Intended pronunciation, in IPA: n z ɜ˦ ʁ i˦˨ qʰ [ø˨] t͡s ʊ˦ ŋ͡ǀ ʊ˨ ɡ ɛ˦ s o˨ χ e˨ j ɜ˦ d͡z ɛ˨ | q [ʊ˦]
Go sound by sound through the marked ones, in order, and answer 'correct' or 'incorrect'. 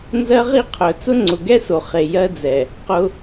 incorrect, correct

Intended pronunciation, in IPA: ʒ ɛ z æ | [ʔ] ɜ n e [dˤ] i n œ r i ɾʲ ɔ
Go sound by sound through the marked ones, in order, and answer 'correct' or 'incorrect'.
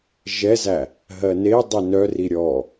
incorrect, correct

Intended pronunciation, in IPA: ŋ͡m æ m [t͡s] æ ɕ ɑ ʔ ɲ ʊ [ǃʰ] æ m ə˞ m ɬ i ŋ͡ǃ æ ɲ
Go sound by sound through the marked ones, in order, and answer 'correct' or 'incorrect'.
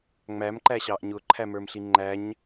incorrect, correct

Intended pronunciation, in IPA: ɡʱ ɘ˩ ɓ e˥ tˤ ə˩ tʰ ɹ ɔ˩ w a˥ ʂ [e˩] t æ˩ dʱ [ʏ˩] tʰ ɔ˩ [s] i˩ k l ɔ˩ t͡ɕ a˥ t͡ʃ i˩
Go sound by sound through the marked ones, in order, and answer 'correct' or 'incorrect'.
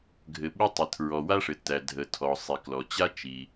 incorrect, incorrect, incorrect

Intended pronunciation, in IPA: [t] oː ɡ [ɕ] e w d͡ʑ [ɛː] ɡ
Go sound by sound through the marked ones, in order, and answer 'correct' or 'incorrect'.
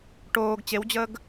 incorrect, incorrect, incorrect

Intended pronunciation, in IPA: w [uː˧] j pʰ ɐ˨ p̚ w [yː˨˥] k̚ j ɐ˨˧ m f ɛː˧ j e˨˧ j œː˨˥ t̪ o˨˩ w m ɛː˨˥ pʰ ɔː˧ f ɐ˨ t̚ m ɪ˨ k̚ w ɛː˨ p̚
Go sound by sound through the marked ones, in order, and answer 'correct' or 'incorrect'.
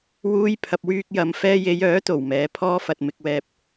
correct, incorrect

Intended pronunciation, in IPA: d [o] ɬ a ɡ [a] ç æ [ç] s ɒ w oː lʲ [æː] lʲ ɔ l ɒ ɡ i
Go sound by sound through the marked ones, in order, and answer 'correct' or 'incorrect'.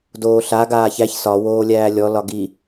incorrect, incorrect, correct, correct

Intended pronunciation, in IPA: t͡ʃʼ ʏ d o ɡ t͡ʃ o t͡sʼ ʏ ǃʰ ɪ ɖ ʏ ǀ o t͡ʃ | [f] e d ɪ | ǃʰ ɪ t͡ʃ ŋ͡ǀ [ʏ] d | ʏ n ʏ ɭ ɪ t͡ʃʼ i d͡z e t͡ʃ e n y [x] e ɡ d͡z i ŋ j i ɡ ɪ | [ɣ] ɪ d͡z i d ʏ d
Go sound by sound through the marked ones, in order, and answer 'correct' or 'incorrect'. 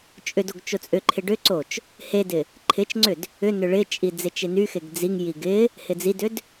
incorrect, correct, correct, incorrect

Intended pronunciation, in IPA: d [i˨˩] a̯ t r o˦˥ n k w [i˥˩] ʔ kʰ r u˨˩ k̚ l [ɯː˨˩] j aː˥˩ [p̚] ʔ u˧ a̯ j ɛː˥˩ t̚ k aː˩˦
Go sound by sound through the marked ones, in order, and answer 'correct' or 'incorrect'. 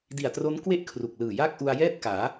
correct, incorrect, correct, incorrect

